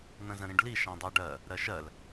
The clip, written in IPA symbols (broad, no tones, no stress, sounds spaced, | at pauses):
n̪ ə̃ z ə̃ ɾ ĩ ɖ l i ʃ ã dˤ ɜ ɖ ɜ | ɾ ɜ ʃ ɜ l